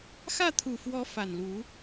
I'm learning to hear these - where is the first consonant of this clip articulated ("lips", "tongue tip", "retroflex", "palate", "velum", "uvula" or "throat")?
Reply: velum